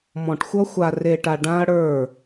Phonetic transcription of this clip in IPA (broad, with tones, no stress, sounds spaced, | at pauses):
m ɔ̃˨ ʈ xʷ ʌ˦ xʷ a˨ r e˨ ʈ a˨ ɖ ã˦ ɐ̯ ɽ ə˞˦˨